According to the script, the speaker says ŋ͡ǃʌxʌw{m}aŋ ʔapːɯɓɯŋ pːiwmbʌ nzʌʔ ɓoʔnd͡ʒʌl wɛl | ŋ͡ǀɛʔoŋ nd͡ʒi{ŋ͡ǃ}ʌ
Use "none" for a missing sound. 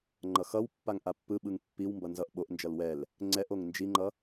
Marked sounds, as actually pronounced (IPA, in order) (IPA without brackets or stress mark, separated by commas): pː, ŋ͡ǃ